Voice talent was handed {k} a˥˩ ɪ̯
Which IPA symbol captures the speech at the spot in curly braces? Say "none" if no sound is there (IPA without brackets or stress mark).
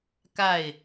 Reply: k